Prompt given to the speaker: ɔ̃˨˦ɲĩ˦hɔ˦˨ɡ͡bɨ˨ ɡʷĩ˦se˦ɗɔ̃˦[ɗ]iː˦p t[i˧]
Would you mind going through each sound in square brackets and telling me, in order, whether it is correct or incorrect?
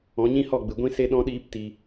correct, correct

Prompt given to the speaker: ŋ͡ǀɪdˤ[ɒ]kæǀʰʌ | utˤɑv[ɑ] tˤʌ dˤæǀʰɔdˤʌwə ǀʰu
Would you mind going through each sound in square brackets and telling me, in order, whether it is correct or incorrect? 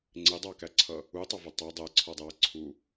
incorrect: ɑ, incorrect: ʌ

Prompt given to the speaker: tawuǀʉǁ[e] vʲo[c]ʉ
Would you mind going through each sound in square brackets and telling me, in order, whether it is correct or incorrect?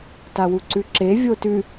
correct, incorrect: t

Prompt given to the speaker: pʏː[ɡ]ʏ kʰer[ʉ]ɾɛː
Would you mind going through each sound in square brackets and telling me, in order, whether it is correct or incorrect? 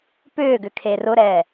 correct, incorrect: ʊ

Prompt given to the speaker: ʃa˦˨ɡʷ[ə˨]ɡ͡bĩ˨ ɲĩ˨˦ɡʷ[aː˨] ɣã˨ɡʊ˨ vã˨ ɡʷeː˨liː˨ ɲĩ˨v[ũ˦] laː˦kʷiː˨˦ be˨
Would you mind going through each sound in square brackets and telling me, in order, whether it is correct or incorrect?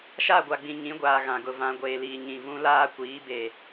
incorrect: a˨, correct, correct

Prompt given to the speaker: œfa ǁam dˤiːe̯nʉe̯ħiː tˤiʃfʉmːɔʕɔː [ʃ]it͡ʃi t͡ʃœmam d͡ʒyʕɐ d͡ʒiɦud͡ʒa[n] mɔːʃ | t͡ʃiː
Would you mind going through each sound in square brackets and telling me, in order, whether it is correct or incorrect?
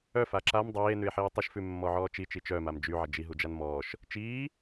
incorrect: t͡ʃ, correct

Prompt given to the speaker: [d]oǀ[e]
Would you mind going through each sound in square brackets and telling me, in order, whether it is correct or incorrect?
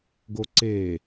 incorrect: ɡ, correct

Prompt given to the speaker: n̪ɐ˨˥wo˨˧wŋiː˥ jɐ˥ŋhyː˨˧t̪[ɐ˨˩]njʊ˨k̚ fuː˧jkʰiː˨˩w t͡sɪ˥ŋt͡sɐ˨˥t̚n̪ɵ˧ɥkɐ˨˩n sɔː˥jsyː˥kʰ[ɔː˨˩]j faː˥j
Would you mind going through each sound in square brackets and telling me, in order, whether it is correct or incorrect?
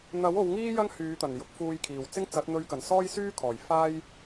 correct, correct

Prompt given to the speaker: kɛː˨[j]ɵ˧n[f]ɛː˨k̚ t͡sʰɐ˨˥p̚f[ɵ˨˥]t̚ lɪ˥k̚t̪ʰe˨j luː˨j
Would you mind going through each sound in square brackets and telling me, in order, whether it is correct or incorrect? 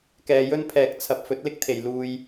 correct, incorrect: pʰ, correct

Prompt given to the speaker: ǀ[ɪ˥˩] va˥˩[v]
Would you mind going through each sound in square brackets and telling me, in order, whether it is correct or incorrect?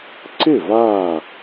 correct, incorrect: none

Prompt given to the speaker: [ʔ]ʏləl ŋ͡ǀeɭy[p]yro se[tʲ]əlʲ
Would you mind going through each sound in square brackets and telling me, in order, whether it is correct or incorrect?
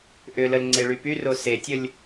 correct, correct, correct

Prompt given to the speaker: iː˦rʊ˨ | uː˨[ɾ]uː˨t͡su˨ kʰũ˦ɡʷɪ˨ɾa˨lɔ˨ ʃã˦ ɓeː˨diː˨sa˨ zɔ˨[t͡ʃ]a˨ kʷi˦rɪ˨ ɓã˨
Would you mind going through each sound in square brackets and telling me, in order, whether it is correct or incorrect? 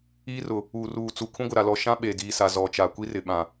incorrect: r, correct

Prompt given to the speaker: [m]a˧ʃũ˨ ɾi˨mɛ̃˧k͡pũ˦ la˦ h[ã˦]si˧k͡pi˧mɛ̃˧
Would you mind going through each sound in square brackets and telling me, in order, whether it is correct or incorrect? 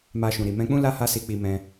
correct, incorrect: a˦

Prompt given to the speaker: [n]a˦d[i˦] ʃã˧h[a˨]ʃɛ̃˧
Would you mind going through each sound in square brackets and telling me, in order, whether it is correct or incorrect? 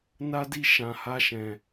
correct, correct, incorrect: a˦

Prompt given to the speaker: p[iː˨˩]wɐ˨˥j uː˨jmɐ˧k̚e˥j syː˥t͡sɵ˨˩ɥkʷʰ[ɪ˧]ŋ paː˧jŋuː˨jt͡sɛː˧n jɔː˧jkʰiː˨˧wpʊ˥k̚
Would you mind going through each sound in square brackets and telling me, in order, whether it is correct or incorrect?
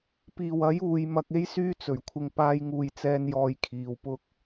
correct, correct

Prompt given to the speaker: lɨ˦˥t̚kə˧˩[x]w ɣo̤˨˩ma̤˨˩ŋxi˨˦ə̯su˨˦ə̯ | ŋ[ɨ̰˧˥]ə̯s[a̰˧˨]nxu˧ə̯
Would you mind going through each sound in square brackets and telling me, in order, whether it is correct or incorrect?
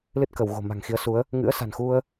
incorrect: none, correct, incorrect: a̤˨˩

